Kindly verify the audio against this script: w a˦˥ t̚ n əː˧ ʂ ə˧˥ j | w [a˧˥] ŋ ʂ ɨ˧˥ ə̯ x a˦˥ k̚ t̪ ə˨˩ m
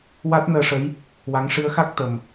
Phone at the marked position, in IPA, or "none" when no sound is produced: a˧˥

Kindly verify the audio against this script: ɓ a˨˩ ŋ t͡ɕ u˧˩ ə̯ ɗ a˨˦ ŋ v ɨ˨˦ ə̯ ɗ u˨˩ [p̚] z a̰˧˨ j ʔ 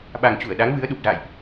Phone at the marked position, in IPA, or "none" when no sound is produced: p̚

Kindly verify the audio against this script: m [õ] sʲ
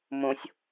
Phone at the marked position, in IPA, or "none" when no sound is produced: õ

